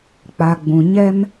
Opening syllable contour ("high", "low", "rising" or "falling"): low